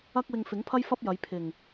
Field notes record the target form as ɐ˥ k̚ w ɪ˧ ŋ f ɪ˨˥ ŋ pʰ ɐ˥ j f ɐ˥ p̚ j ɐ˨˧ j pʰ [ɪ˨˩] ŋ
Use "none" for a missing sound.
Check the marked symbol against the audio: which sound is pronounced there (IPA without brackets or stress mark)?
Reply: ɪ˨˩